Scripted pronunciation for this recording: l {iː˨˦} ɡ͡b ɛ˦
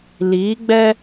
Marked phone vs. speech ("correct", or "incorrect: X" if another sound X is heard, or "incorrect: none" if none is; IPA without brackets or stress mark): correct